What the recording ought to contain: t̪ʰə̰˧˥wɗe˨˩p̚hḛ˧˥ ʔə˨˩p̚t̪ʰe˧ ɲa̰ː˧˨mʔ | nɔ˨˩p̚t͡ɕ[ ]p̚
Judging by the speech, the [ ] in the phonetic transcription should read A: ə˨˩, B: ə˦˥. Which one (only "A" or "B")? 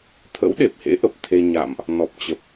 A